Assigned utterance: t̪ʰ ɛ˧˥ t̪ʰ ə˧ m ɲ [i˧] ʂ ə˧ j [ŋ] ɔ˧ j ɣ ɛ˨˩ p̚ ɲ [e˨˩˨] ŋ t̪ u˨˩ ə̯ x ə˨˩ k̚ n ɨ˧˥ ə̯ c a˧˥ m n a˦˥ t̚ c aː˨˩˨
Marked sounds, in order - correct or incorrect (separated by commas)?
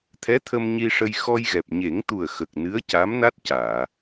correct, incorrect, incorrect